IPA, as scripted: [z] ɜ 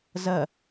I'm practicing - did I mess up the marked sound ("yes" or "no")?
no